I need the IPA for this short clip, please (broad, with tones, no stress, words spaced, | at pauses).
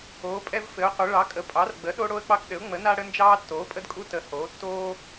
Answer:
oː˩˥pʼɛ˦vfɘ˩˥ʊ̯qʷɘ˩˥ ɭɑ˩˥kʼə˩˥pʼɑ˩˥rɡ͡bə˩˥ ɗo˦ɽo˦ə̯k͡pɑ˦kɗɘ˩˥ʊ̯ ŋ͡mə˩˥na˦ɽə˦nd͡ʒɑː˦ tːoː˩˥pʼə˦dkʼu˦ tə˩˥ hoː˩˥ tːoː˦